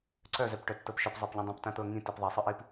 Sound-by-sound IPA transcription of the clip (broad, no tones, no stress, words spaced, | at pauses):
ǀœzœp ʈœtːɤpʃœp zˤɤpʎĩdˤĩp tãt̪ɤ ŋĩ tipðˤisˤɯʔip